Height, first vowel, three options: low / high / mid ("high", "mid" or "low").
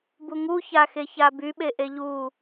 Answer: high